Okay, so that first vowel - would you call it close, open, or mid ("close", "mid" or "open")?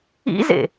close